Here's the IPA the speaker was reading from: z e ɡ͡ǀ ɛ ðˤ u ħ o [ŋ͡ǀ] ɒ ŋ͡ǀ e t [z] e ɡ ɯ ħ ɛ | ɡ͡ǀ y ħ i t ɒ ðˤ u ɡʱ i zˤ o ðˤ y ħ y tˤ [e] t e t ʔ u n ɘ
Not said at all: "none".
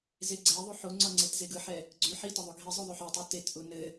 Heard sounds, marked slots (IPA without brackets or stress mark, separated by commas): ŋ͡ǀ, z, y